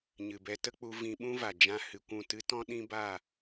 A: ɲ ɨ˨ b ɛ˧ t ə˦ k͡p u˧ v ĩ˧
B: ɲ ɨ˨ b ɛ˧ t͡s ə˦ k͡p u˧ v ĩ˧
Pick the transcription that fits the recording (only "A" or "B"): A